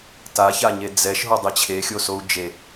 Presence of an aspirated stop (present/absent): present